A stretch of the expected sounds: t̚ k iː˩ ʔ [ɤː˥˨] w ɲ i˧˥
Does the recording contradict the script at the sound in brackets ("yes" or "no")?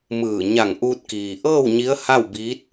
no